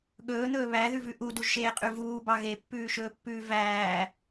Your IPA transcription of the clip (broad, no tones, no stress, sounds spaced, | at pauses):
ɠ ɵː n̪ ɵː β æ ð ʉ v ʉ ʔ u d u ʒ ʃ eː qʼ ʉ v uː b ɑ ɣ e pː ʉː ʃ ɵː pː ʉː v æː